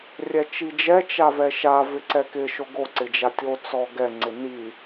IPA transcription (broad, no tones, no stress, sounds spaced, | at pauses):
rʲ ɛ t͡ʃ i d͡ʒ ɛ t͡ʃ a v ɛ ʃ a v ɪ ǀ ɛ k ɪ ʃ o ɡ o ǀ ɪ d͡ʒ a tʲ o t͡s ɔ ɡ ɛ ŋ͡ǀ ɪ n i